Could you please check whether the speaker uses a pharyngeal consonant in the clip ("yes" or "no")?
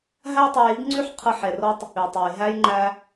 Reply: yes